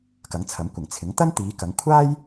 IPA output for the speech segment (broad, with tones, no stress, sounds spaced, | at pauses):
k ɐ˨˥ ŋ t͡sʰ ɐ˨˥ m kʷ ɪ˨˩ ŋ t͡sʰ ɪ˨˥ ŋ t̪ ɐ˥ n t̪ iː˨˧ k ɐ˨˧ ŋ kʷʰ aː˥ j